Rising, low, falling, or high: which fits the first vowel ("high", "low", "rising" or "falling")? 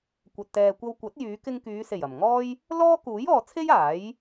low